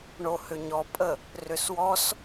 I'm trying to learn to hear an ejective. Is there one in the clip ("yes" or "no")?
yes